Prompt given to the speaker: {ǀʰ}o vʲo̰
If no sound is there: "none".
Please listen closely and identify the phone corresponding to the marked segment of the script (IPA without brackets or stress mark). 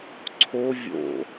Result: ǀʰ